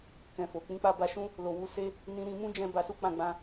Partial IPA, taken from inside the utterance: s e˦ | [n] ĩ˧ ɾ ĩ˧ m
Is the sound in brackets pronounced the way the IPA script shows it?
yes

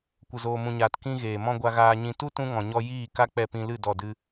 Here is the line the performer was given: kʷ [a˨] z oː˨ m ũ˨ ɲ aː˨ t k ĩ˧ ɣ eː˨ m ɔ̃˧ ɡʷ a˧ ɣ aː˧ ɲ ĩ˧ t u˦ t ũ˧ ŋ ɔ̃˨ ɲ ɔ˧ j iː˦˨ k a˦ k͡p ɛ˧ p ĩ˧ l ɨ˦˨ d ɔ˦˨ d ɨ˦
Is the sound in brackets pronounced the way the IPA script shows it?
no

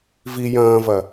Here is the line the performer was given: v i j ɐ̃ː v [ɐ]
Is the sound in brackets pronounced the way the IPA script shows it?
yes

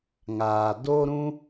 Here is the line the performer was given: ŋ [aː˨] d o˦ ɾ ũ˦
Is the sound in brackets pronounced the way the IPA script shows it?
yes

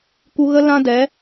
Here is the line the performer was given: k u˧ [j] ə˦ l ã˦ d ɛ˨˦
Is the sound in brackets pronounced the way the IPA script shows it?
no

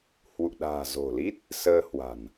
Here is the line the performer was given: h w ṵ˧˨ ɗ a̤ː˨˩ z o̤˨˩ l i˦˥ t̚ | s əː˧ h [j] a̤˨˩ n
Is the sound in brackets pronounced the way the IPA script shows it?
no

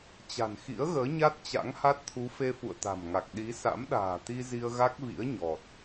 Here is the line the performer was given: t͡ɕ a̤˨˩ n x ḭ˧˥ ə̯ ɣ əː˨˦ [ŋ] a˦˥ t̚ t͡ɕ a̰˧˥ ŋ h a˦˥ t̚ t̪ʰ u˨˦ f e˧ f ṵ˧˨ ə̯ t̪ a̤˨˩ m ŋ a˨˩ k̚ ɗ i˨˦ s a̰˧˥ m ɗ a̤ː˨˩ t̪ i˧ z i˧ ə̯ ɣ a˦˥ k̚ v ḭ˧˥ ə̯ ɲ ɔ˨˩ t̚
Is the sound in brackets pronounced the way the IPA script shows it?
no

